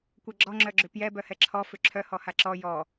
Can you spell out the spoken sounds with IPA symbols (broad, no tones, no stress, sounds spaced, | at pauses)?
kʷ ɛ ɡ͡ǁ ɔ ŋ͡ǁ œ ɡ͡ǁ ʏ p j ɛ b œ h ɛ ǁʰ ɔ f ʏ ǁʰ œ h ɔ h a ǁ ɔ j ɔ